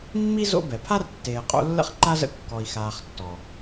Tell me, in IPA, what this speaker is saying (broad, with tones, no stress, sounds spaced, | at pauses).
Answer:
mː i˥ z o̰˦ b ɛ˩ pʰ a˥ r tː eː˨ qʼ o̰˦ lː ə̰˥ χ ǃ a˥ z ə̰˦ kː ɔ˨ i̯ x aː˨ χ tː ɔ˩